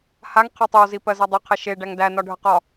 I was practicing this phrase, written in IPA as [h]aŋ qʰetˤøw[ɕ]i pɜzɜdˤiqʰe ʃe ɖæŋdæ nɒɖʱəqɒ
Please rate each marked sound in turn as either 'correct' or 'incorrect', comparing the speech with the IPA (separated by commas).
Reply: correct, incorrect